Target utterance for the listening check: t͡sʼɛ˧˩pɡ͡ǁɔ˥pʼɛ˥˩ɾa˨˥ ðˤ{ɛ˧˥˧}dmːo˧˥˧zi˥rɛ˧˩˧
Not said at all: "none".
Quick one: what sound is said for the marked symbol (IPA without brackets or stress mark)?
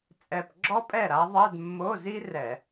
ɛ˧˥˧